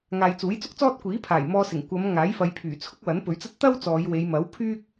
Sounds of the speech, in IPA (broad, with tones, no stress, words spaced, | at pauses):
ŋaː˨jt͡suː˨˥jt͡sʊ˥k̚t͡sɔː˥t̚ kʷiː˨˥pʰaː˨˩jmɔː˧sɪ˨˩ŋ kʷɐ˨˧m ŋaː˨˥jfɐ˨˧j pʰyː˨˩t͡sʰʊ˥k̚wɐ˨˥n pɵ˨˥ɥt͡sɐ˥t̚ t̪ɐ˥w t͡sɔː˨˧jwe˨˧j mɐ˨˥wpʰyː˥k̚